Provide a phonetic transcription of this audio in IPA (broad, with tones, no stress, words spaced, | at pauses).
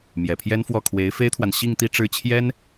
mjɛ˨˩pʰjɛ˥nfwɔ˥˩ kʰwe˧˥ɪ̯fe˥ɪ̯t̪ʰwa˨n ɕi˥˧ŋt̪i˥˧ ʈ͡ʂɻ̩˥˩t͡ɕʰjɛ˥n